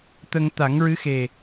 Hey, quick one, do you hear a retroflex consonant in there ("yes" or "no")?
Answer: no